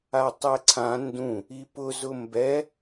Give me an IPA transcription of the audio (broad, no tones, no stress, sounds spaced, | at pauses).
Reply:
a tˤ ɛ ǀʰ ã n d ũ | i p ʊ z ʊ m b ɛ